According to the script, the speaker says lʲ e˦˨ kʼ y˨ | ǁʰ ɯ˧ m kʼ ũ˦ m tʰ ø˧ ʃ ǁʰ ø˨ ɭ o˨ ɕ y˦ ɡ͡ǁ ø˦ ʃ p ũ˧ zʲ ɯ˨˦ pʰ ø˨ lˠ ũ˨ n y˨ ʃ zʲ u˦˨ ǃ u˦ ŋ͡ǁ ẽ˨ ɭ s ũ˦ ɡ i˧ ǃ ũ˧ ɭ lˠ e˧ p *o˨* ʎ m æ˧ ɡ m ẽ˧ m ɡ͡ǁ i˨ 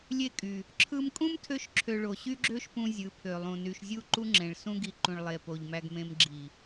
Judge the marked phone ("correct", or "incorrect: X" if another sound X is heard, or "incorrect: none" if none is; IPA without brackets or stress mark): correct